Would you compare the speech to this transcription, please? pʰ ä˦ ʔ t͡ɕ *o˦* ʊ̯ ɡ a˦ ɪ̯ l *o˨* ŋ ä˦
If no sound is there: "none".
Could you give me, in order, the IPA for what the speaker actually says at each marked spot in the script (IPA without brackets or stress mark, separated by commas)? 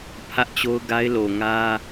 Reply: o˦, o˨